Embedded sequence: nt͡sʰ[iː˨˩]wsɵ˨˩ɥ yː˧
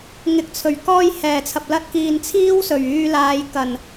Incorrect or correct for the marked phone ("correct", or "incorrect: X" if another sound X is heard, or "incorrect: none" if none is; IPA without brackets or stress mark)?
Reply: incorrect: iː˥